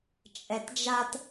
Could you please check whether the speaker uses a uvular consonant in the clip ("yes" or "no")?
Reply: no